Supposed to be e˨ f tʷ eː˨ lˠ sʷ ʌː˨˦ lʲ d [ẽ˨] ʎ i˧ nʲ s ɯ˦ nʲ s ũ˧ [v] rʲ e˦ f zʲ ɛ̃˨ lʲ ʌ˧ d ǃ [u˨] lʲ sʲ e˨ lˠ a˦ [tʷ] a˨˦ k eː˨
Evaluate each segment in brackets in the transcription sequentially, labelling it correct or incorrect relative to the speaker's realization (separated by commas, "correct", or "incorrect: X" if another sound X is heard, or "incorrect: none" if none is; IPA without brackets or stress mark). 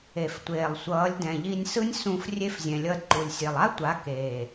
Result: incorrect: ɛ̃˨, incorrect: f, correct, correct